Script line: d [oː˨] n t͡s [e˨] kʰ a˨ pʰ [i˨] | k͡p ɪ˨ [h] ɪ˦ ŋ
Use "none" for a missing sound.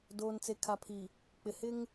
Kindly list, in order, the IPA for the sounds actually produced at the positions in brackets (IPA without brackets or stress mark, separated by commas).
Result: oː˨, e˨, i˨, h